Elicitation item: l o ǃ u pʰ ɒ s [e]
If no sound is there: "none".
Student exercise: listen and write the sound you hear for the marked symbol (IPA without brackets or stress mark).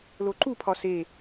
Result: e